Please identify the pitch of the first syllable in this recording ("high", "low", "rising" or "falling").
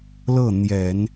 falling